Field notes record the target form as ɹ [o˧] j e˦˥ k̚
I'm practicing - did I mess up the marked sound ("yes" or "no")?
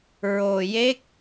no